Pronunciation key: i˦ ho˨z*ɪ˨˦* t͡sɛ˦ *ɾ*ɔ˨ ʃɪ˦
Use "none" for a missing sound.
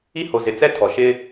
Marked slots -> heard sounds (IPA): ɪ˨˦, tʰ

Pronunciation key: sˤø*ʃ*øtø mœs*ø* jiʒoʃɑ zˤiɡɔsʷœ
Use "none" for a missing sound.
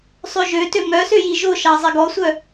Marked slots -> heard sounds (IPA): ʒ, ø

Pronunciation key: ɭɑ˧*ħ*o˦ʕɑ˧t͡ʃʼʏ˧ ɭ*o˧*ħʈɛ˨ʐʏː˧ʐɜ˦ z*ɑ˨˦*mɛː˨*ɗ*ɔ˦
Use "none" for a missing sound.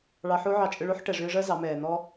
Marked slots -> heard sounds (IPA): ħ, o˦, ɑ˨˦, n̪

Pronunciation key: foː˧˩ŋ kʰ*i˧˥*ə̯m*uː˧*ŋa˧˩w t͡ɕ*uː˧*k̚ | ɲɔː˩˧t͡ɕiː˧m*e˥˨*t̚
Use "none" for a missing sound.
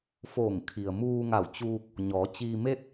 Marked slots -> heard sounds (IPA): i˩, uː˧, uː˧, e˥˨

